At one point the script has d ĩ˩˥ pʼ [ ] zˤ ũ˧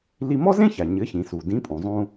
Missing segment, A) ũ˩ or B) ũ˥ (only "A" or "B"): A